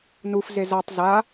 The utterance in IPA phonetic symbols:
n u f z e z a tˤ z a

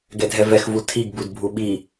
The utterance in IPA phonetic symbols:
ɡ ɛ dʱ ɛ v ɛ x v u tʰ i ɡ b u d bʱ u ɓ i

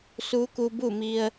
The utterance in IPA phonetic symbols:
s u˧˥ k u˧ b u˥˨ m i˧ ə̯

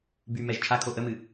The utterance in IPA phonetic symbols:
b y m ɛ ʒ t͡ʃʰ a kʰ o ʔ ə m ɨ

